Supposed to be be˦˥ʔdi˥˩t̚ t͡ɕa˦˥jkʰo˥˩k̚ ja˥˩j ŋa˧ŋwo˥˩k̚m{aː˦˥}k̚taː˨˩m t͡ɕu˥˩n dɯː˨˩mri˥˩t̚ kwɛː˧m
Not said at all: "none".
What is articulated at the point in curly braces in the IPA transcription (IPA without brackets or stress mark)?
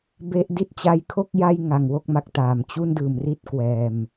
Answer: a˦˥